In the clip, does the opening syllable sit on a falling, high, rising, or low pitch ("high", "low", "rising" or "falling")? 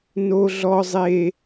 high